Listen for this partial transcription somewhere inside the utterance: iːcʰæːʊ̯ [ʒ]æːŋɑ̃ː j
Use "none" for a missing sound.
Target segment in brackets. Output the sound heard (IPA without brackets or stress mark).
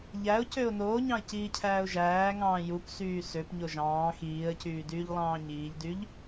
ʒ